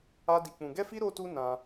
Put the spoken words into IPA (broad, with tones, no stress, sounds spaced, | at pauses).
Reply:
a˦ d i˧ k͡p ũ˧ ɡ ɛ˦ f i˦ ɾ o˦ t u˦ n ã˧